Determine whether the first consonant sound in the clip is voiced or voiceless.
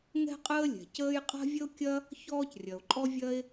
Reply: voiced